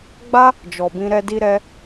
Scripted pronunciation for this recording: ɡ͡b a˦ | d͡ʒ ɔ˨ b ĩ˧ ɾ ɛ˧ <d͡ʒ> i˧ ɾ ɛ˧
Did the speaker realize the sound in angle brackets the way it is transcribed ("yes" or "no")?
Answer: no